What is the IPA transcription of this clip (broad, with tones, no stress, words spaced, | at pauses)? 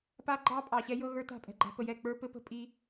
pa˦ ɡ͡ǃɑ˦pʼɑ˨ ɕɛ˦jɤ˦ɣə˞˦ ta̤˦˨pʼɛ̤˦˨ɡ͡ǃa̤˦ pə˨jɛ˦˨k͡pə˞˦ pɘ˦pə̤˦˨pʼi˦